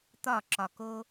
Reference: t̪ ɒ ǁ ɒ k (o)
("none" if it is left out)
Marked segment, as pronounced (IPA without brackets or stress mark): o